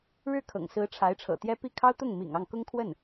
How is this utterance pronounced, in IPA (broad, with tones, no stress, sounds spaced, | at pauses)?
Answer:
ɻ ɻ̩˥˩ kʰ ɤ̰˨˩ ŋ s ɹ̩˧˥ ʈ͡ʂʰ a˧˥ ɪ̯ ʈ͡ʂʰ ɤ̰˨˩ t̪ j ɛ˥ p i˥˩ kʰ ɑ˥ ʊ̯ t̪ ʊ˥˩ ŋ m ḭ˨˩ ŋ ɑ˥˩ ŋ k ʊ˥ ŋ kʰ w ə˥˩ n